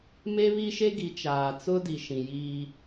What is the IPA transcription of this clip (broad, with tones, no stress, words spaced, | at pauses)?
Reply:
me˦βi˦ʃe˦ɡi˨ t͡ʃaː˨t͡sʊ˦ di˨ʃĩ˨jiː˦